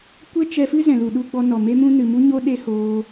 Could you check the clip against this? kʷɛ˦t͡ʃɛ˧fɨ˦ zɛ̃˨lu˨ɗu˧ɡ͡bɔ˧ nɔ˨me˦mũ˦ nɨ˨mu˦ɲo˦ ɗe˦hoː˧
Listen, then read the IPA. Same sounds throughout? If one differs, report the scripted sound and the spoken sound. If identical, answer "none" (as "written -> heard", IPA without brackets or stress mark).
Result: none